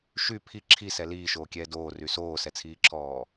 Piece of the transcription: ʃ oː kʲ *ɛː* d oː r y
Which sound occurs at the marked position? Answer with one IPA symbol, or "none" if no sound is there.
ɛː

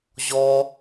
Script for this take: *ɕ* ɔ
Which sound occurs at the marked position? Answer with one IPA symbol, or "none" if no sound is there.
ʑ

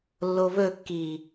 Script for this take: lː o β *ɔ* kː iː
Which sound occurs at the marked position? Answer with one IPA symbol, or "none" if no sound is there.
ɵ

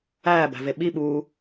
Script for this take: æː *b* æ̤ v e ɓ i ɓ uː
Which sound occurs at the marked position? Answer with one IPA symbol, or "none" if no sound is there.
b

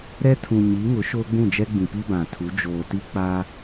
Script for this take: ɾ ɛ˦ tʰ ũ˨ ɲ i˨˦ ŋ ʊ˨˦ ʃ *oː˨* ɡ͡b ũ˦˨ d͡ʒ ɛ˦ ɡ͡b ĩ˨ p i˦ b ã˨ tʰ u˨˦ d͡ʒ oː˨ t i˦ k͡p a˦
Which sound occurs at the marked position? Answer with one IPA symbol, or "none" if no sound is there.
oː˦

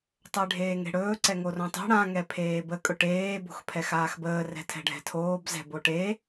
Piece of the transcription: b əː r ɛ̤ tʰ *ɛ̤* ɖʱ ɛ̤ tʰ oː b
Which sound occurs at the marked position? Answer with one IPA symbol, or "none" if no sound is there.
ɛ̤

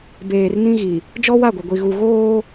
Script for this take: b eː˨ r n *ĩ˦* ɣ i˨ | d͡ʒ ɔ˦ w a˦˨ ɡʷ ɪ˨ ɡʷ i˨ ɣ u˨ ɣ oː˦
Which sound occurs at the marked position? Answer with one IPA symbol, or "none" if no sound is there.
ĩ˦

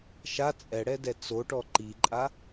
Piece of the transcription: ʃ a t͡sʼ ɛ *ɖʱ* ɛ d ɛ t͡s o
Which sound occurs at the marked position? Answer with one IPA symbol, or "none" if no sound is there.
ɽ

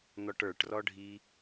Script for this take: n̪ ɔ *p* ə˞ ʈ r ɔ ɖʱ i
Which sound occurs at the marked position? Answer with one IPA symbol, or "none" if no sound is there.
ʈ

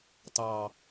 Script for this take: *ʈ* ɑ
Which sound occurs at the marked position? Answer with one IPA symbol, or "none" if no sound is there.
t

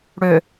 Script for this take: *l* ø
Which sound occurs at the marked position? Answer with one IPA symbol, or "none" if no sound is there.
ɽ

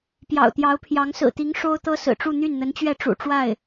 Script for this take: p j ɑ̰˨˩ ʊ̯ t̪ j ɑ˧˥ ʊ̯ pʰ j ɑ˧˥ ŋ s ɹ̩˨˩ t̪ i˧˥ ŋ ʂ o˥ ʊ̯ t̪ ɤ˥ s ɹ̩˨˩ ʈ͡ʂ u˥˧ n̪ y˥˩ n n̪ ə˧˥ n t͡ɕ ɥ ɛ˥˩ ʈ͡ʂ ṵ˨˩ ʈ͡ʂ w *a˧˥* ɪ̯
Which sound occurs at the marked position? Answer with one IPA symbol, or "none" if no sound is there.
a˥˩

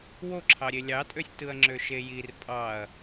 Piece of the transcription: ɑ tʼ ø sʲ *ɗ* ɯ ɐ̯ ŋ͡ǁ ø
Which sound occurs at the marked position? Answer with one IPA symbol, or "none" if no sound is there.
t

